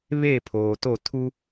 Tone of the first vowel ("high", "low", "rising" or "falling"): falling